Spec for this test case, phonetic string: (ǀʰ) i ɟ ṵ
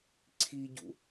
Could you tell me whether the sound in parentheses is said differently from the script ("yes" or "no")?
no